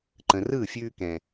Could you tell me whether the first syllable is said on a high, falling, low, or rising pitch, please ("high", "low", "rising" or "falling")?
low